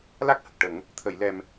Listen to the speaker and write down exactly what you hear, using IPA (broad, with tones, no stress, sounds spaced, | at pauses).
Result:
l a˦˥ k̚ h ə˨˩ k̚ ʈ ə˨˩˦ ŋ | t̪ʰ əː˨˩˨ j l ɛ˨˩ m